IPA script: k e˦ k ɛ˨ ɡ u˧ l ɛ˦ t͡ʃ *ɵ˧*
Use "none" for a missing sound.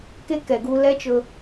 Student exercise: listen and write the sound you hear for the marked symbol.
ɵ˧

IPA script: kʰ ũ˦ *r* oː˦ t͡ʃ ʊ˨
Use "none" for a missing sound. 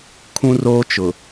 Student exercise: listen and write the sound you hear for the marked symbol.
r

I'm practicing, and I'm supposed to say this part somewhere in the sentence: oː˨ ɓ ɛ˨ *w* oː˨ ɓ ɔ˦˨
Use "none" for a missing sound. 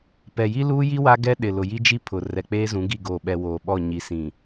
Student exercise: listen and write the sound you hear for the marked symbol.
w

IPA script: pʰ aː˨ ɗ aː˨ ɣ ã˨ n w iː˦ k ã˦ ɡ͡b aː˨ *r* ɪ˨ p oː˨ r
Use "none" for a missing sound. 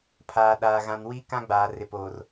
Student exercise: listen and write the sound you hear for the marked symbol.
r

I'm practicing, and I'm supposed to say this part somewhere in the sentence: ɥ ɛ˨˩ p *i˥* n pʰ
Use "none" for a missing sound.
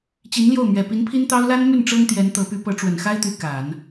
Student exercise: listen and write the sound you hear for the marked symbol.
i˧˥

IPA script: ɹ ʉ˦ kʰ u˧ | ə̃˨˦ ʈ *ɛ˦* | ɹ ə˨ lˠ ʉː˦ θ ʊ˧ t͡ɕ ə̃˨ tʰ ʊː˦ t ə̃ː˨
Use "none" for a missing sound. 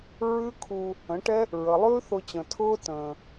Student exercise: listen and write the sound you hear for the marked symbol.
ɛ˦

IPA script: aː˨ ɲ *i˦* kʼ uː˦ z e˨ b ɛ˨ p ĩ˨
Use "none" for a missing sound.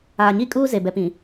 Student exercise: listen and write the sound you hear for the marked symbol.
i˦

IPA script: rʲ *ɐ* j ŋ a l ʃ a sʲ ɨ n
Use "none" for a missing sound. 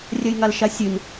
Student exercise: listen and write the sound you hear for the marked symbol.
ɐ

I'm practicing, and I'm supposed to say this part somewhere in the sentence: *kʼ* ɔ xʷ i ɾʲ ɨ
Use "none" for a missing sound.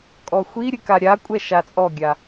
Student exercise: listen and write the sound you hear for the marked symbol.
kʼ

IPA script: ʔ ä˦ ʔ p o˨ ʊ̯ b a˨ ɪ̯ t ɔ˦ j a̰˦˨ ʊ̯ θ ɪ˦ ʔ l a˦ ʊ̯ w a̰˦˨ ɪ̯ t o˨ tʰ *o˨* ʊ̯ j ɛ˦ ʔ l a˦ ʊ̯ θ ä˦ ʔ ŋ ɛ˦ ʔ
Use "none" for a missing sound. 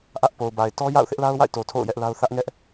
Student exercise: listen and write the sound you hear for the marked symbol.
o̰˦˨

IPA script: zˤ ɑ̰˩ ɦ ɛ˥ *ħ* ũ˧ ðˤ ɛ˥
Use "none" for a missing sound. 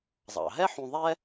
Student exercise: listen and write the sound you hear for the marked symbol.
ħ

